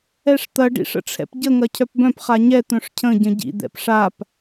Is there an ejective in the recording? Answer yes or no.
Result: no